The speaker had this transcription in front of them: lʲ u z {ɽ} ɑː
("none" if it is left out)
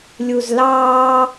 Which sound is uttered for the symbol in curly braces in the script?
l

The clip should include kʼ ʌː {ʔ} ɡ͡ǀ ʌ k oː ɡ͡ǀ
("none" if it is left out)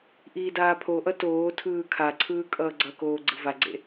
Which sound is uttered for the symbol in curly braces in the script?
none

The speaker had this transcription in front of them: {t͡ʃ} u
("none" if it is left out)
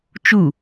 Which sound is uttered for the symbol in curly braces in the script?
t͡ʃ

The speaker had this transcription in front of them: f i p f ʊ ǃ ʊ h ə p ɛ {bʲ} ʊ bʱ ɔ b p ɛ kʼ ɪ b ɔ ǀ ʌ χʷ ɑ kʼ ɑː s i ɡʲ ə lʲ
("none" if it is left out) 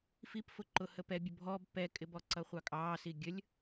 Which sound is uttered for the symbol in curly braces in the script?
bʲ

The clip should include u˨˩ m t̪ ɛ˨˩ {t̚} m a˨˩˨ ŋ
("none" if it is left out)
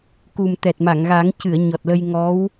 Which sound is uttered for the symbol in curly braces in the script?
t̚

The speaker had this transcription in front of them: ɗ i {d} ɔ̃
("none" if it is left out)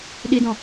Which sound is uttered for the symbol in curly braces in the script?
d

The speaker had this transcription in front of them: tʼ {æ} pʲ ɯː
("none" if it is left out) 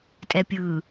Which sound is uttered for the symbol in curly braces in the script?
ɛ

